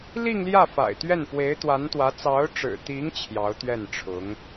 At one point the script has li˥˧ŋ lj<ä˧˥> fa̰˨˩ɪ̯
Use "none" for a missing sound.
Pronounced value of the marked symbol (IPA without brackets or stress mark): ä˥˩